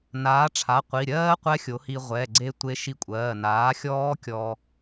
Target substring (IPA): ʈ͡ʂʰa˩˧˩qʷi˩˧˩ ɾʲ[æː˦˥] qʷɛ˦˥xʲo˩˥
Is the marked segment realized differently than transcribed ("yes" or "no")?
yes